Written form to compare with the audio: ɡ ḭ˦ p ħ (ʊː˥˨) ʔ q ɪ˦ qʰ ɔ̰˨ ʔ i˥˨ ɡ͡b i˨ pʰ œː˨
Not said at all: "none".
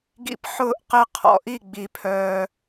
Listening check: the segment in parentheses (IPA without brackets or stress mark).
ʊː˥˨